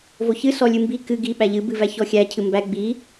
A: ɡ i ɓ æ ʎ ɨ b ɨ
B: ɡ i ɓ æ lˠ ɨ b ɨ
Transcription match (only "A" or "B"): A